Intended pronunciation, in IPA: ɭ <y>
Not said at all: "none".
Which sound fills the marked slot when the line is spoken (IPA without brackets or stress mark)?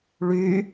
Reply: y